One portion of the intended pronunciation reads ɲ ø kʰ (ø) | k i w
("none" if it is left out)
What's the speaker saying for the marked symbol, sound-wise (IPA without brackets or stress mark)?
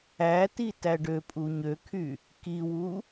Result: y